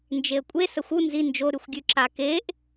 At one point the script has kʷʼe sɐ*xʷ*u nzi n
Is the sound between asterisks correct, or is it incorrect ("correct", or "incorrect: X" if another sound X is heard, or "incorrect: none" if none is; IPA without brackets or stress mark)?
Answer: correct